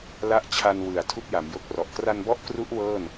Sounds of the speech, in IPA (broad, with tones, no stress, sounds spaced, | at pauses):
l a˦˥ ʔ t͡ɕʰ a˧ n w ɯ˨˩ a̯ tʰ u˥˩ k̚ j a˩˦ m j o˦˥ k̚ r ɔ˨˩ ʔ k r a˧ n b ɔ˦˥ ʔ k r u˦˥ ʔ w ɤː˥˩ n